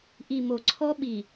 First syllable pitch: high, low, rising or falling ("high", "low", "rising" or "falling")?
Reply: low